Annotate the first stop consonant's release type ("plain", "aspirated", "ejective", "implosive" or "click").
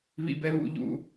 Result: plain